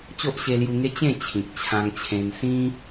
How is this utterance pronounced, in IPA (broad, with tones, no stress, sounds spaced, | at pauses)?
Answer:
t͡ɕ o˦ ʔ ɕ e˧ l j u˧ ŋ e˦ t͡ɕ ẽ˥˧ t͡ɕʰ ĩ˨ k̚ t͡ɕʰ ã˧ ŋ t͡ɕʰ ẽ˧ n s ĩ˦